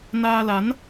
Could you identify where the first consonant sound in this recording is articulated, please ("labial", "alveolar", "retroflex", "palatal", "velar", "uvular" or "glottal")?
alveolar